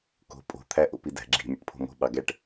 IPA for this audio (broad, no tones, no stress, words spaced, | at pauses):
ko̤ pʼo̤ t̪ʰæʔo̰pidæ̤ ɡ͡ǁi̤ mʲo̰ʈpʰo̤mo̤ ɓɑɡæʈ